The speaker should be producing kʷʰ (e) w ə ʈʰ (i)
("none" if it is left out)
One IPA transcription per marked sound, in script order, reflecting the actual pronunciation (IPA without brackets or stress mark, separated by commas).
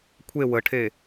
e, e